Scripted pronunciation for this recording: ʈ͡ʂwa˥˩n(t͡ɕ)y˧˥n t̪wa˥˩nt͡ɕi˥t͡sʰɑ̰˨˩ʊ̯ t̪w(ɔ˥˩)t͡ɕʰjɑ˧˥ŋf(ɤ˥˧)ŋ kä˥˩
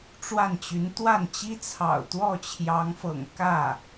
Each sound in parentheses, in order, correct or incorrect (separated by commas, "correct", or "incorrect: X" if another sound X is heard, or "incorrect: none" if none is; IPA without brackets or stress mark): correct, correct, incorrect: ɤ̰˨˩